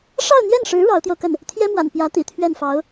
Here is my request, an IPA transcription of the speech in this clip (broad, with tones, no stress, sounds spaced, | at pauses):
ʂ ɑ˥˧ ʊ̯ n̪ j ɛ˥˩ n ʂ ɻ̩˧˥ ɻ ɑ˧˥ ʊ̯ t̪ j o˧ ʊ̯ k ə˥˩ n | t̪ʰ j ɛ˥ m w a̰˨˩ n p j ä˧˥ t̪ ḭ˨˩ t̪ʰ ɥ ɛ˥˩ n f ɑ˧˥ ʊ̯